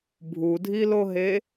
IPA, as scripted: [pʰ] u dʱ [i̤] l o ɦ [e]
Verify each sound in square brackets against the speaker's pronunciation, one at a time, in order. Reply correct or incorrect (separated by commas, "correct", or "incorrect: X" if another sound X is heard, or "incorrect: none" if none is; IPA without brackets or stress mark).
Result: incorrect: bʱ, incorrect: i, correct